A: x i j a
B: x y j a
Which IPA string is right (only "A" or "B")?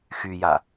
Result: B